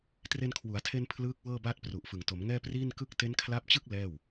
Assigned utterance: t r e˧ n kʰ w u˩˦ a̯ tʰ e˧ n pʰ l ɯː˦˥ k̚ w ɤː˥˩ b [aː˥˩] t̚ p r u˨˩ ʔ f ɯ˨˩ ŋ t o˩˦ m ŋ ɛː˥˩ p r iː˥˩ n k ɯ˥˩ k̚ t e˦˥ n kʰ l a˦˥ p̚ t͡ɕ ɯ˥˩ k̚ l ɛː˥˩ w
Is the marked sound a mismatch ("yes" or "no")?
no